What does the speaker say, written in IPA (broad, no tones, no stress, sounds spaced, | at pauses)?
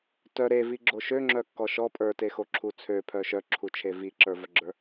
t œ ɾ e v i ɡ͡ǁ o ʃ ø ŋ͡ǁ œ kː ɔ ʃ ɔ pʼ ə˞ t e x o ǁʰ u t͡sʰ ø pʰ œ ʃ œ ǁʰ u t͡ʃʰ e v i ǁ ə˞ v œ ɡ͡ǁ ə˞